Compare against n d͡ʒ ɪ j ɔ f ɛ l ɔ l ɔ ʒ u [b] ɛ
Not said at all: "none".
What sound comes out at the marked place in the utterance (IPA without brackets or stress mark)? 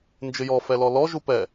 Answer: p